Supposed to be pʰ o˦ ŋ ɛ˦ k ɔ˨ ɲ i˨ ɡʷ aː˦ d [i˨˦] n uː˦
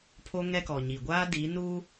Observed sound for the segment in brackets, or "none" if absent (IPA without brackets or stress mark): i˨˦